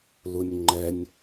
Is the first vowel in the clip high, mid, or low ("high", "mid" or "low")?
high